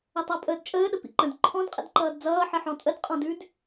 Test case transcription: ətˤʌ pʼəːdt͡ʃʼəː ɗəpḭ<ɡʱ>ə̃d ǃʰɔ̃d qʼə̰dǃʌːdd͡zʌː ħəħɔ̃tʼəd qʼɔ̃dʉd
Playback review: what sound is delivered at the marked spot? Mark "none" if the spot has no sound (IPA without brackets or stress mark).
ǃ